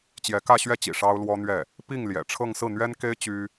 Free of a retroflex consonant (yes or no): no